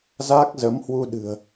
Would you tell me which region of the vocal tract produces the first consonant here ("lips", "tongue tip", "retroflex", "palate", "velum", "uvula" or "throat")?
tongue tip